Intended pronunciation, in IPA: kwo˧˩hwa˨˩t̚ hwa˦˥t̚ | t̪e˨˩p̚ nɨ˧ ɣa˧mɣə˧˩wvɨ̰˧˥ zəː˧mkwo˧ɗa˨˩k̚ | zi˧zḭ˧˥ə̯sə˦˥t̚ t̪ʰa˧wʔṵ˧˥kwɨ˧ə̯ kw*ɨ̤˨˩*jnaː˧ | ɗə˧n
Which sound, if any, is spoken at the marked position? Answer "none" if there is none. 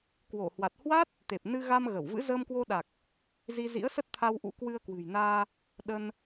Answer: ɨ̤˨˩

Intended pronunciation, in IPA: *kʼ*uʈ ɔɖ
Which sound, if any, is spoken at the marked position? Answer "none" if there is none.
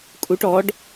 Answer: kʼ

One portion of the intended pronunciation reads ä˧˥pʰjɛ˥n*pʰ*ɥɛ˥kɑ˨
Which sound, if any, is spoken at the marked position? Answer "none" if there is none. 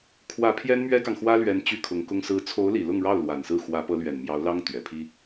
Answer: m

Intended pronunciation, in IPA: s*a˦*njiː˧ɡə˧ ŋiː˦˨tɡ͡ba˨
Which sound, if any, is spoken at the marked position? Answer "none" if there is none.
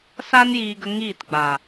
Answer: a˦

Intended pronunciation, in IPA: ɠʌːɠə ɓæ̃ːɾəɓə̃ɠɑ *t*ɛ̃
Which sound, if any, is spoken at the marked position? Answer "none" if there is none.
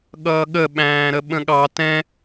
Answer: t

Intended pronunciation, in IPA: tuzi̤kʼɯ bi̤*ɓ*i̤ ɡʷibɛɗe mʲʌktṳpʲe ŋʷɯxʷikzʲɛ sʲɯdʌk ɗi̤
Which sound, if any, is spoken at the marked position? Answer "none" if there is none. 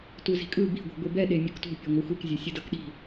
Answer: ɡʷ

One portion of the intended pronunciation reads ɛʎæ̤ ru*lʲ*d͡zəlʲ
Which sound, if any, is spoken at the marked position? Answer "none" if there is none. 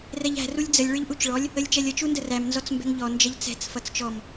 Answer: lʲ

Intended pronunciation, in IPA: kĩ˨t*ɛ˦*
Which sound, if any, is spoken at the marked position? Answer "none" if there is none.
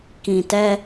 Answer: ɛ˦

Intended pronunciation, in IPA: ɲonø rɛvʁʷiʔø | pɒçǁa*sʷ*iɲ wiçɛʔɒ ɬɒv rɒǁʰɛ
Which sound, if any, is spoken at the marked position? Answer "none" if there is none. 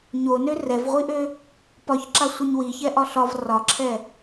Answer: sʷ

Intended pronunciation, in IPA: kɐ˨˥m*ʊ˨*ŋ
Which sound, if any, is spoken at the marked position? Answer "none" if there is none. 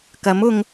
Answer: ʊ˨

